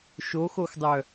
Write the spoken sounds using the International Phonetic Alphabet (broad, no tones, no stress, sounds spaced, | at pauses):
ʃ o x o x dˤ œ